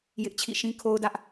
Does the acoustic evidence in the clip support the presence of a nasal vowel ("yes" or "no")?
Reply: yes